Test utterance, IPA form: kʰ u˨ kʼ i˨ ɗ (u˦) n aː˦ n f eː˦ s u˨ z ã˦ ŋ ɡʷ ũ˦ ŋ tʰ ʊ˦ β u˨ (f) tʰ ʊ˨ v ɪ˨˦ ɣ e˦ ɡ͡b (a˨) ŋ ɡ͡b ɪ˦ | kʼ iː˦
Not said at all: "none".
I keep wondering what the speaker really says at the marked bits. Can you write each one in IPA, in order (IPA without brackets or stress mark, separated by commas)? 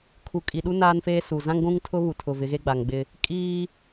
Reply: u˦, none, a˨